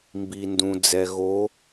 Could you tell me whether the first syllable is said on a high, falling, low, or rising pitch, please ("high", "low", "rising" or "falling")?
low